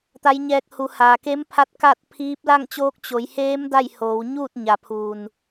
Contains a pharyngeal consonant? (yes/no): no